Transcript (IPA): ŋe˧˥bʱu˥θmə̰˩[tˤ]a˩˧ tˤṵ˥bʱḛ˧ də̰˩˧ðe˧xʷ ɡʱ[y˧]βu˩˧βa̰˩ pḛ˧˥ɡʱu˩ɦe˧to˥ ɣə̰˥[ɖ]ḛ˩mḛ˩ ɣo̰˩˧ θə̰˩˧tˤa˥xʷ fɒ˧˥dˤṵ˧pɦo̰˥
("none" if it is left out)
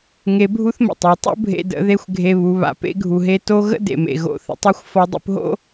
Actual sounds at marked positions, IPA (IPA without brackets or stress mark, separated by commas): tˤ, e˧, d